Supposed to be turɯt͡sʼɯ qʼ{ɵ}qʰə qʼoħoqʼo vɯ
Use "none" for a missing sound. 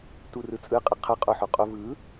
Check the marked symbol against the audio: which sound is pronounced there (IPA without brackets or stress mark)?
ə